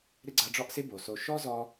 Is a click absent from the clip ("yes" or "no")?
no